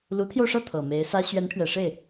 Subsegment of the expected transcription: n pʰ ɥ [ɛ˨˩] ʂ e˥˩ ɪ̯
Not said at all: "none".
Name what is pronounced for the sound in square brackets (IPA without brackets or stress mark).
ɛ˨˩